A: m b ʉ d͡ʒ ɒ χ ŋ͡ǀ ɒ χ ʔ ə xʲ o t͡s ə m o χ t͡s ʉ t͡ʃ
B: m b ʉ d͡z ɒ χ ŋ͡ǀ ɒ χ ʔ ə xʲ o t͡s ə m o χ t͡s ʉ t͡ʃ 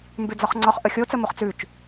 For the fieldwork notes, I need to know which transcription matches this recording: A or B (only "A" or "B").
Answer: B